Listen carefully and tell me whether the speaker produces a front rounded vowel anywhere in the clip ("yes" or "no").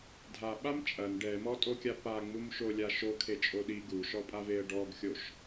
no